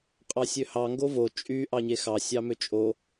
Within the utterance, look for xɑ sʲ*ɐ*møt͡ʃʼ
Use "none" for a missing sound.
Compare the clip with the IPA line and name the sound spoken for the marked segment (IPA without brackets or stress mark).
ɑ